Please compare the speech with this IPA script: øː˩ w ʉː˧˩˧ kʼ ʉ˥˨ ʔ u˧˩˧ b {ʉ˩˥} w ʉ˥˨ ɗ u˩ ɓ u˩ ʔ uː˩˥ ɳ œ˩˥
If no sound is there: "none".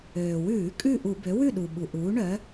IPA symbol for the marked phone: ø˩˥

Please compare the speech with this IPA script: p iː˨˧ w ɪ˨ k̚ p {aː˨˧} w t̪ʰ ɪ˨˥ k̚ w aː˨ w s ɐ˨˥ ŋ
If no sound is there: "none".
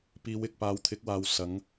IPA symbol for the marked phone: aː˨˧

